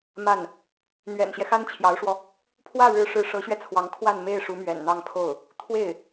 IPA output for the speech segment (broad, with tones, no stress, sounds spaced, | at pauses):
m a˥˩ n | n̪ ɥ ɛ̰˨˩ n ɕ j ɛ˦ x a˥ n t͡ɕʰ j ɑ˧˥ ʊ̯ ʂ w ɔ˧ | pʰ w ä˥˩ ɻ ɻ̩˧˥ ʂ ɻ̩˧˥ ʂ ɤ˧˥ ɕ ɥ ɛ˧ t͡sʰ w ɑ˧˥ ŋ kʰ w a˥˧ n m e˥˩ ɪ̯ ʂ u˧˥ m ɥ ɛ̰˨˩ n n̪ ɑ˥˧ ŋ pʰ o˥˩ ʊ̯ | t̪ʰ w e˥˩ ɪ̯